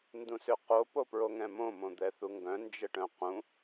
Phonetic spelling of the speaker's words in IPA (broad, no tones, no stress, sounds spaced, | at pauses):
n d ũ s ʏ q o p o p ɹ o ŋ ɛ̃ m õ m õ d̪ ɛ θ u ŋ ɡ œ̃ n d͡ʒ ə ʈ œ̃ q ũ